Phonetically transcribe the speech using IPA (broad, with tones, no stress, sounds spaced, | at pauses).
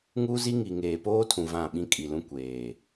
ŋ u˦ z i˦ ŋ i˨ ŋ eː˨ p oː˦ tʰ ũ˨ v ã˦˨ ɓ ĩ˦ kʼ i˨ l ũ˦ kʷ eː˨